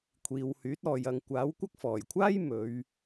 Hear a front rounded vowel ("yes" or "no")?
yes